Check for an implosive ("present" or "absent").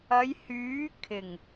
absent